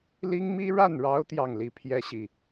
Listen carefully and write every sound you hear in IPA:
l i˥ ŋ m i˥ ɻ a˥˩ n ɻ ɑ˧˥ ʊ̯ t̪ j ɑ˥˩ ŋ l i˧˥ pʰ j ɛ˥ ɕ i˨

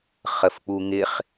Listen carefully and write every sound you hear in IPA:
χ ə f k͡p u ŋ ɪ χ

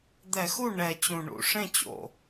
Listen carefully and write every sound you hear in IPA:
d̪ ɛ˧˩˧ x u˥˩ ɳ ɛ˨˩ t͡ɕ ũ˨˩ ɳ ṵ˧˩˧ ʂ ẽ˥˩ t͡ɕ o̰˨˩

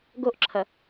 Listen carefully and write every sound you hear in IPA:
ɡ o ʔ ǁʰ ɐ

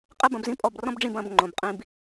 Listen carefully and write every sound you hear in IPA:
qʼ ɛ˦ b ɐ̃˨˦ b z ĩ˦ pʼ ɔ˧ b r ɔ̃˦ b ɖ͡ʐ ĩ˧ b ɐ̃˦˨ b ŋ͡ǃ õ˨ b qʼ ĩ˧ b

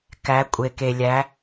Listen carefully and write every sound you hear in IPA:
k æ˩˧ kʷʼ e˩ k e˩ lʲ æ˩˧

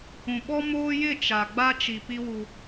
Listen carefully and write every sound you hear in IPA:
ũ˨ ɓ ɔ˦ m oː˦ j ɪ˦˨ t͡ʃ a˨ ɡ͡b a˦ t͡ʃ i˨ p i˦ w u˦

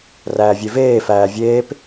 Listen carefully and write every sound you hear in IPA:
r æː vʲ e v eː f æː vʲ eː p

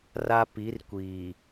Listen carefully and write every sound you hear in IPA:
r a˦ p i˨˦ r kʷ iː˨

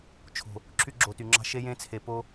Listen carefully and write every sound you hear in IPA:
t͡ʃʰ o̤˨ | ǁʰ y˦ ɡ͡ǁ o˨ t y˨ ŋ͡ǁ ɑ̤˦ ʃ e˦ j ẽ˦ t͡sʰ e˨ p o˦

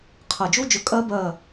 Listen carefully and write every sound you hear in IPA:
qʰ ɐ˧˩ d͡ʒ u˦˥ d͡ʒ ɵ˧˩ kʼ ɜ˦˥ b ɜ˧˩

